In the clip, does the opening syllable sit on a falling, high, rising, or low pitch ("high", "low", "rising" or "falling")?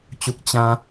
low